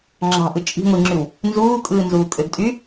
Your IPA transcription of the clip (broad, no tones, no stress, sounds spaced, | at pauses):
ŋ͡ǁ ɑ̤ ʔ ɯ t͡ʃʼ i̤ ŋʷ i ŋ͡ǁ y w | n z uː kʼ ɯː n z uː kʼ ø ɡ tʼ y